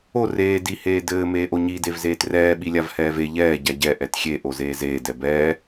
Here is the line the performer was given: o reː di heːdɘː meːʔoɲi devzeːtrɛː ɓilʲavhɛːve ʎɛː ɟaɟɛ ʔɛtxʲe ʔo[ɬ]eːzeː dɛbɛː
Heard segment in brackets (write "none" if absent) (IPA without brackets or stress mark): z